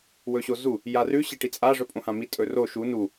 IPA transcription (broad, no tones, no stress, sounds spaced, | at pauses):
w ɵ ɕ o z u | j a r ʉ ɕ e ʈ i t͡sʼ a ʐ ɵ pʼ õ h ã m i tʼ ɵ r o ʃ u n u